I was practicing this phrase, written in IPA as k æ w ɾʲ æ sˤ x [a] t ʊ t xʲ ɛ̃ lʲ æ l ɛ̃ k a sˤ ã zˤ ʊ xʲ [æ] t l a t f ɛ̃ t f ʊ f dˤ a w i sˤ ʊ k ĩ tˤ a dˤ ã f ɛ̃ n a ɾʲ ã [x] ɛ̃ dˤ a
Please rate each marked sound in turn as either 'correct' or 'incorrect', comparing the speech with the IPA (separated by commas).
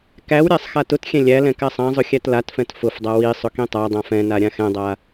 correct, correct, correct